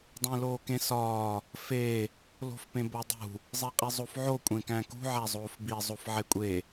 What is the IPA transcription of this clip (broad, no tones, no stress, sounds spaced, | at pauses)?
dˤ ẽ l oː k ẽ s ɒː | f e | l o̤ f p ẽ b o dˤ ṳ | zˤ e qʼ i zˤ o f ʕ o kʷʼ ẽ k æ̃ k ṳ ʕ æ zˤ oː f b i zˤ o f ʕ e kʷʼ e